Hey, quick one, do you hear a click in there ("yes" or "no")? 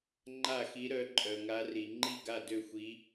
yes